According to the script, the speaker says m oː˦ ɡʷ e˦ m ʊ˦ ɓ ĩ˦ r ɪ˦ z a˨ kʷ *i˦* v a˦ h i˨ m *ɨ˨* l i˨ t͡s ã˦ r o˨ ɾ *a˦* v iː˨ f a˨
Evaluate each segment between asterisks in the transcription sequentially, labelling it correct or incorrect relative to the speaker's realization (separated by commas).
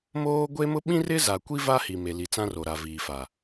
correct, incorrect, incorrect